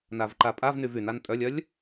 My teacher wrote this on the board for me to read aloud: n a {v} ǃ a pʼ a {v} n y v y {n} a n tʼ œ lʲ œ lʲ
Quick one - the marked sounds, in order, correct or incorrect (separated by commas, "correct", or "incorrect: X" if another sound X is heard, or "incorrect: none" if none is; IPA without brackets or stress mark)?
correct, correct, correct